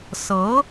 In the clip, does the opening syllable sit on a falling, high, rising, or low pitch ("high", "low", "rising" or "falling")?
rising